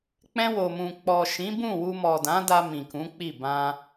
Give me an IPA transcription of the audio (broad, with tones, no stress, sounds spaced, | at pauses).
k͡p ɛ̃˧ w o˨ m ũ˨ k͡p ɔ˨ ʃ ĩ˨˦ b ũ˦˨ w u˧ m ɔ˨ d ã˨˦ d a˧ m ĩ˨ k ũ˨˦ k͡p i˦˨ b ã˧